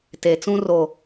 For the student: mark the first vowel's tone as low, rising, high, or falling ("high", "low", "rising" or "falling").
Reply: low